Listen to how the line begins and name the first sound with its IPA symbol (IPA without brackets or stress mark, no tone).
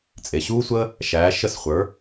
t͡sʼ